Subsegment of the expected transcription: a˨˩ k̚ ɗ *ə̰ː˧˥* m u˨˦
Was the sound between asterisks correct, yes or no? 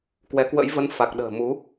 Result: no